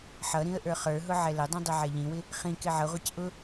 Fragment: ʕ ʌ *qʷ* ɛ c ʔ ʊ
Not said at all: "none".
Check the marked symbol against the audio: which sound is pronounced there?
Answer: ʁʷ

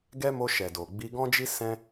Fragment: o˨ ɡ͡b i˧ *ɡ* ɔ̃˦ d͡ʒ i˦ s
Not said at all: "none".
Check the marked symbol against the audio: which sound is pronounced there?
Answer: ɡ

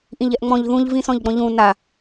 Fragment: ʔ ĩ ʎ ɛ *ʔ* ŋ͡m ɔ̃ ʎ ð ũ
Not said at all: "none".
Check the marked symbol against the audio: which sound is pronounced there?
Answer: ʔ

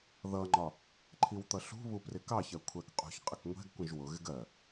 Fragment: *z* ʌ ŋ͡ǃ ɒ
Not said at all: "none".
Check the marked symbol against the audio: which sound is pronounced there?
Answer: ð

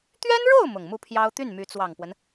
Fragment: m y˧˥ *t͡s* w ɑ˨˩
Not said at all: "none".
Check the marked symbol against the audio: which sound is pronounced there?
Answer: t͡s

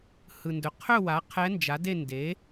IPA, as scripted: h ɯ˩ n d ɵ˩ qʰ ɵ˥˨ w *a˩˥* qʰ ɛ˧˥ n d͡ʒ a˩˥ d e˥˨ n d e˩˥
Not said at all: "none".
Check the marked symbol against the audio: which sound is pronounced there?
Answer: a˩˥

